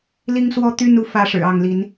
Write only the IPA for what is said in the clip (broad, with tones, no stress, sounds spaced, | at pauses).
l i˦ ŋ s w ɔ˦ t̪ y˦ n u˨˦ f ä˦ ʂ ɻ̩˨˩ ɑ˥˨ ŋ l i˨˦ n